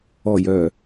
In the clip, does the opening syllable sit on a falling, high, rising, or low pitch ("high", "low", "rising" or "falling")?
low